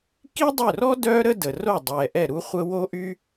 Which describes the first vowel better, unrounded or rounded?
unrounded